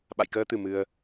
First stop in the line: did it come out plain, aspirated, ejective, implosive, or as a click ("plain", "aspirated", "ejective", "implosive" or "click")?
implosive